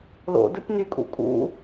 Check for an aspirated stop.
absent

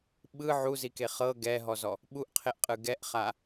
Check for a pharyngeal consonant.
present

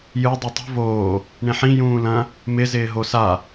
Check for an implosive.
absent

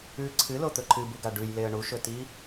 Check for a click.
present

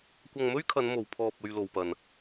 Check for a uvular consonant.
absent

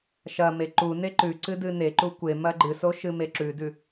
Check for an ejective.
absent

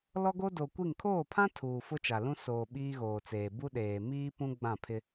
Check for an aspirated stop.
present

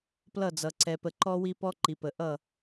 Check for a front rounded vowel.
absent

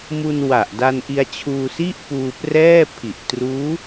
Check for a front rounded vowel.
absent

